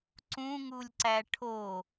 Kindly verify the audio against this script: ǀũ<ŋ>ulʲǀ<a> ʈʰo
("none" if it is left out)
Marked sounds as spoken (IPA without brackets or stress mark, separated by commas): ŋ, æ